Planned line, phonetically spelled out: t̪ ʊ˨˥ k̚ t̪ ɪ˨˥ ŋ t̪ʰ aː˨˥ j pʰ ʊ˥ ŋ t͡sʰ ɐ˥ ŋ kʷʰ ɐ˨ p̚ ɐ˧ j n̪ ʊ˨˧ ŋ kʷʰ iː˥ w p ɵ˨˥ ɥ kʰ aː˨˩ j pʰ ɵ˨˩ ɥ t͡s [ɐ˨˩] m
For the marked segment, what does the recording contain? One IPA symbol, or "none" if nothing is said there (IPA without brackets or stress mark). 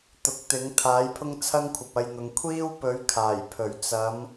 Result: ɐ˨˧